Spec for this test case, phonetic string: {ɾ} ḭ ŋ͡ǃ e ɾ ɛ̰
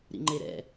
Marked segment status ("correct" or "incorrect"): correct